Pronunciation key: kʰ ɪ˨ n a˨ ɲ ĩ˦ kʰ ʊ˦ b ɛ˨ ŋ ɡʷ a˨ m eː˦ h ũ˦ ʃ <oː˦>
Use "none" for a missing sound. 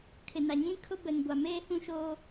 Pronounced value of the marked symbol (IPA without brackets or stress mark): oː˦